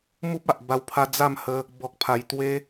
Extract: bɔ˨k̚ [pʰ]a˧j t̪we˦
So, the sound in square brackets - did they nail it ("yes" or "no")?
yes